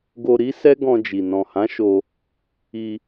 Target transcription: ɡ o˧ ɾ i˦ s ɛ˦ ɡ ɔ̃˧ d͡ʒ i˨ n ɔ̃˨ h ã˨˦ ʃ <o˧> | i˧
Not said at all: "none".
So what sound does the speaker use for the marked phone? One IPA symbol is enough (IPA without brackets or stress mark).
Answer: o˧